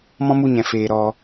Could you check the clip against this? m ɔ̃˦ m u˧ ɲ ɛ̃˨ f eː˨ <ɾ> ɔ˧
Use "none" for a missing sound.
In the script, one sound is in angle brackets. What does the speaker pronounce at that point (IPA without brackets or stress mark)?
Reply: ɾ